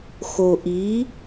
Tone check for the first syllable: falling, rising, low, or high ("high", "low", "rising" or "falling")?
low